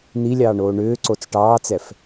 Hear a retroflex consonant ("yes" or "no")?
yes